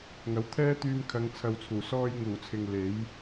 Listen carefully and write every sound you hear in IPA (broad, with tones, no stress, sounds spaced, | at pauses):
ŋ ɐ˨˥ w t̪ʰ ɛː˥ t̪ yː˧ m kʰ ɐ˨˧ ŋ t͡sʰ ɐ˧ w t͡sʰ uː˨˩ s ɔː˧ j ŋ uː˨˩ t͡sʰ ɪ˨ ŋ l e˨˥ j